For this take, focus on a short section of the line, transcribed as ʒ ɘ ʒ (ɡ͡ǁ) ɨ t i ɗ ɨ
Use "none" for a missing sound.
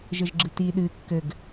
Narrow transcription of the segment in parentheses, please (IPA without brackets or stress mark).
ɡ͡ǁ